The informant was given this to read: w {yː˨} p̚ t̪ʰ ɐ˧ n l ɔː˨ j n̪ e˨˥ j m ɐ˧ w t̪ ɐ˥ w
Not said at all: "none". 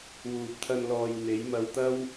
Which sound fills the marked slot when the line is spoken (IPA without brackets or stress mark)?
uː˨